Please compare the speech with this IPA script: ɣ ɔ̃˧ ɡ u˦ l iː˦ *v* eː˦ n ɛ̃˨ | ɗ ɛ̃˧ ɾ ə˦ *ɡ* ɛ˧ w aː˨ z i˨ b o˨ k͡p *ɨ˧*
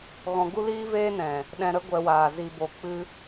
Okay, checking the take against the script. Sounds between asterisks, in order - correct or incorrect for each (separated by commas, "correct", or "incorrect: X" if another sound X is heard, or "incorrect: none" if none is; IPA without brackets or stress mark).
correct, incorrect: ɡʷ, correct